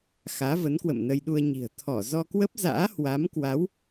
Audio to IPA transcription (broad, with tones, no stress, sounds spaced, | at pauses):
x aː˨˦ v ə˨˦ n k w ə̰˧˨ m n ə˧ j ɗ u˧ ə̯ ɲ i̤˨˩ ə̯ t̪ʰ ɔ˧˩ z ɔ˧ k w ə˦˥ p̚ z a̰ː˧˥ h w a˨˦ m k w a˨˦ w